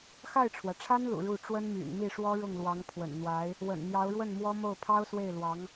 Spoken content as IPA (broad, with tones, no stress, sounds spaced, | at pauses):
x a˥˩ ɪ̯ ʈ͡ʂʰ w ä˩ ʈ͡ʂʰ a˥ n l ṵ˨˩ ɻ u˥˩ ʈ͡ʂ w ə˥ n m y̰˨˩ n m i˥˩ ʂ w ɔ˥ ɻ ʊ˥˩ ŋ l w ɑ˧˥ ŋ pʰ w ə̰˨˩ n n̪ w a˧˥ ɪ̯ | w ə̰˨˩ n n̪ j ɑ˧˥ ʊ̯ ɻ w ə˥˩ n m w ɔ˥ m o˥˩ ʊ̯ pʰ ɑ˥ ʊ̯ s w e˥˩ ɪ̯ l w ɑ˧˥ ŋ